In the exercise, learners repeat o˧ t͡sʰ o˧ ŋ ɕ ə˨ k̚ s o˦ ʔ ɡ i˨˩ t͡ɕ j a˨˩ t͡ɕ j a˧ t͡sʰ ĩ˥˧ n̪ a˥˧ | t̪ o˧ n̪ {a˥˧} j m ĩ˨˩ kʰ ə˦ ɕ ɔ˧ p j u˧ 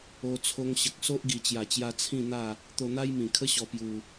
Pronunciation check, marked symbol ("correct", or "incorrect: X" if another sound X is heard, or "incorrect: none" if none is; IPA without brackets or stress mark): incorrect: a˦